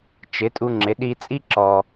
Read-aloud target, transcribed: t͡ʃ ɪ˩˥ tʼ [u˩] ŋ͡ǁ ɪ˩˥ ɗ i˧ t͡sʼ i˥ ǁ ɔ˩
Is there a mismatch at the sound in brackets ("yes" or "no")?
yes